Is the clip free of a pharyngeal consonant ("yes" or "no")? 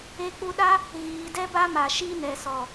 yes